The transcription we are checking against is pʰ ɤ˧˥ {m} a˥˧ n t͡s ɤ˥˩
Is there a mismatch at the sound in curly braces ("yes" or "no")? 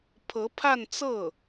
yes